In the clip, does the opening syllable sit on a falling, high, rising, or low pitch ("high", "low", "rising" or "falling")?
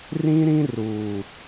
high